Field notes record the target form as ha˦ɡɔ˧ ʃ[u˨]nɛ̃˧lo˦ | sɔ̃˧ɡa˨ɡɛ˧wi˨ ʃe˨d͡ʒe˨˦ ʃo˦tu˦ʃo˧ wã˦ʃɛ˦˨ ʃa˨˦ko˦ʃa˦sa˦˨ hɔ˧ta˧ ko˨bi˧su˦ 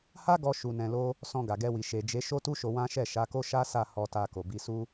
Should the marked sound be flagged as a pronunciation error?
yes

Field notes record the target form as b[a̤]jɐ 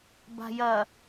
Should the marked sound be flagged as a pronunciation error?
no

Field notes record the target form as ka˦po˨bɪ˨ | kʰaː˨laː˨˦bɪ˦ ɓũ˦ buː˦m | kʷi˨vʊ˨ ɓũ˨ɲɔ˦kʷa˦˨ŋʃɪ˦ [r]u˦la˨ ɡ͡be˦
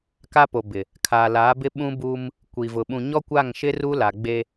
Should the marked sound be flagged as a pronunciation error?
no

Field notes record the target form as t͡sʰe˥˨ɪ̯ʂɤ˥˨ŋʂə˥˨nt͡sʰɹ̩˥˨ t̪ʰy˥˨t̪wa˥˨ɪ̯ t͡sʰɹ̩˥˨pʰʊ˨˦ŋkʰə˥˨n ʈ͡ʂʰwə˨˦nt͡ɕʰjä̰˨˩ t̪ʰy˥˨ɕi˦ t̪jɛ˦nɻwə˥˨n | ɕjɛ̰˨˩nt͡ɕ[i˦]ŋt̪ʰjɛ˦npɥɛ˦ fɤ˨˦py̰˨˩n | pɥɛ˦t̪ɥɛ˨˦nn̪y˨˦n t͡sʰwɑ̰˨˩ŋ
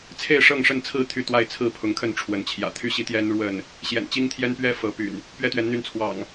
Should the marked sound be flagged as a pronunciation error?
no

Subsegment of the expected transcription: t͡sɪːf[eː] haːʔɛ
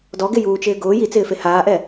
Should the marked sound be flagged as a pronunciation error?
yes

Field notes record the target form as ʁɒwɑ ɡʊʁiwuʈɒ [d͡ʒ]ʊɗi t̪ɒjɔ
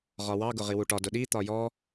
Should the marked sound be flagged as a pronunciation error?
yes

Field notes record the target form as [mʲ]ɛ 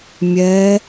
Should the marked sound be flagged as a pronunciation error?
no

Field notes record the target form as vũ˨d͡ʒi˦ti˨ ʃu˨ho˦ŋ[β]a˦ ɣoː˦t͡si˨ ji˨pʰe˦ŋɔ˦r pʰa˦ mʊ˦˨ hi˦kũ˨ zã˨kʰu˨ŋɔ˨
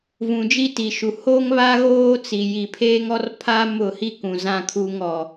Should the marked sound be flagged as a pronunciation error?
no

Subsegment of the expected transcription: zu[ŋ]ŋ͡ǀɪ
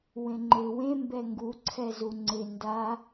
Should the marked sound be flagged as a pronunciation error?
yes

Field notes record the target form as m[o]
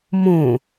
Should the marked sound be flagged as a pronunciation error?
yes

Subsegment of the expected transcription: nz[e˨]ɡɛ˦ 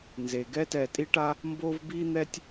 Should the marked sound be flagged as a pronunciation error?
no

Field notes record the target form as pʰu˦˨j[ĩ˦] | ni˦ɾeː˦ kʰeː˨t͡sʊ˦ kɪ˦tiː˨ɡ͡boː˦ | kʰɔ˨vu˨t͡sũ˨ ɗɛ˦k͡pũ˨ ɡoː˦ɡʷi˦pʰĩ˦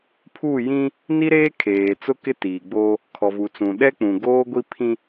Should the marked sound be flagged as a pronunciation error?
no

